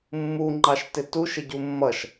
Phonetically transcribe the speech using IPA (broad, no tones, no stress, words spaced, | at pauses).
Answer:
mːuŋ͡ǃɑʃtɪ tuʃɪɟu mːʌʃ